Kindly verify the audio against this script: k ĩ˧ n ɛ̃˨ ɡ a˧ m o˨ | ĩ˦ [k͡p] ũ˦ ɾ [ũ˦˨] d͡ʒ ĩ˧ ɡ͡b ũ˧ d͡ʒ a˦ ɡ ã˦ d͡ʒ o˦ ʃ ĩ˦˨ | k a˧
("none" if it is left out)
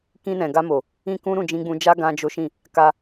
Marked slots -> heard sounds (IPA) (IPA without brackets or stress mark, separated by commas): k, ũ˦˨